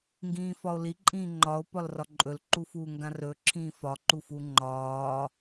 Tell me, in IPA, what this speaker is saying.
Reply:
ŋ ɡ ĩː f ɒ o̯ l i ǃʼ ĩː ŋ͡ǃ ɒ o̯ p ɒ l r ɒ ǃʼ ɵ l ǃ u f uː ŋ ɡ ã r ɵ ǁʰ ĩː f ɒ ǃ u f u ŋ͡ǃ ɒː

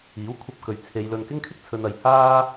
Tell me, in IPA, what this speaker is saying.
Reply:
iː˨˥ w kʷʰ ɐ˧ p̚ k ɵ˨ ɥ t͡sʰ e˨˧ j l ɵ˧ n k ɪ˥ ŋ kʰ ɪ˥ k̚ t͡sʰ ɵ˧ n ɐ˧ j h aː˥

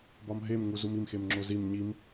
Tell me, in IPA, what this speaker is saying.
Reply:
b ɒ m ɦ e m ŋ u z u m i m x e m ŋ͡ǁ o z i m ɲ i m

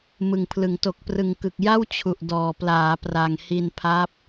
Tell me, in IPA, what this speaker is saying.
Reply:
m ɯ˨˩ ŋ pʰ l ɯ˩˦ ŋ t o˨˩ k̚ p r ɯ˩˦ ŋ k ɯ˨˩ k̚ j a˥˩ w t͡ɕʰ u˨˩ ʔ d ɔː˨˩ p l aː˩˦ p r a˨˩ ŋ h i˧ n pʰ a˦˥ p̚

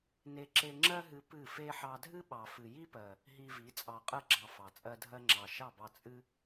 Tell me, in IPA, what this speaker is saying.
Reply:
n e˦ ǁ e˦ ŋ͡ǁ ɜ˦ ɦ ɨ˧ p ɨ˦˨ f e˦ ħ ɑ˧ dʱ ɨ˦ ɓ ɑ˨ f ɨ˨ j i˦ p ɜ˨ | ɦ i˧ v i˨˦ t͡sʼ ɑ˨ qʼ ɜ˧ ɡ͡ǁ ɑ˨ f ɑ˨ t͡sʼ ɜ˦ dʱ ɜ˦ ŋ͡ǁ ɑ˨ ʃ ɑ˦˨ b ɑ˧ t͡sʼ ɨ˧

